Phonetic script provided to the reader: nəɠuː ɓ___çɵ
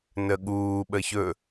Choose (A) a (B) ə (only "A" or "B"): B